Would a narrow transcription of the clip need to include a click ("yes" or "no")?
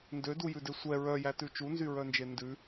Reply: no